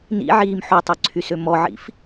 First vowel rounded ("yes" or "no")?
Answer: no